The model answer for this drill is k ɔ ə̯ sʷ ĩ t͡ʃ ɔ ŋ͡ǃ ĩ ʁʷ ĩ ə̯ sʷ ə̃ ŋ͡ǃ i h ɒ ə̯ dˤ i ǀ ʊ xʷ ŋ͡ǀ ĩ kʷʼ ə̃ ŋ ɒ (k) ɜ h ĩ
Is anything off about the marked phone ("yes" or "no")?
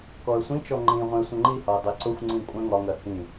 yes